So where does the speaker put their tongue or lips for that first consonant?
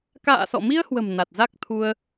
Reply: velum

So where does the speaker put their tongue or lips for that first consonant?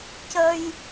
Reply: palate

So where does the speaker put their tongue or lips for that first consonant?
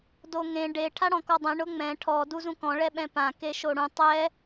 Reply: tongue tip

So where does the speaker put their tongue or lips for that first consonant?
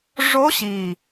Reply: retroflex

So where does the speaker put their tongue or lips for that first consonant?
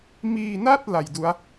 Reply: lips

